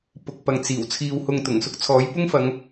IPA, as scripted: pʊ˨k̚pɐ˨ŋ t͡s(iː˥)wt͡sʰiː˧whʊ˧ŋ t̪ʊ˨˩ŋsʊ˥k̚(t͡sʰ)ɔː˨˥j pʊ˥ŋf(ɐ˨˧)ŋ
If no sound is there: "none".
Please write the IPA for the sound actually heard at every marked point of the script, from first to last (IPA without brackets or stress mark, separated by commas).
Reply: iː˨˩, t͡sʰ, ɐ˨˧